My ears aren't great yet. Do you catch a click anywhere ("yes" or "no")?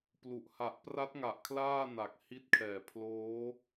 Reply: no